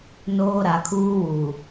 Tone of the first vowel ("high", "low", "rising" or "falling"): high